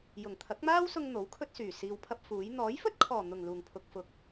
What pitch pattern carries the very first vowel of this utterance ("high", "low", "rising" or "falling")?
low